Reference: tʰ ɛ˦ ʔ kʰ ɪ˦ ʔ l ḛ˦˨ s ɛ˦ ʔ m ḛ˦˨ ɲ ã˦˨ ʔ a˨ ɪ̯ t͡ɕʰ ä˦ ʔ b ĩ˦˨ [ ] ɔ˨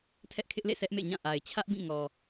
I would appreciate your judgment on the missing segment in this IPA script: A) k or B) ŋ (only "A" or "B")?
B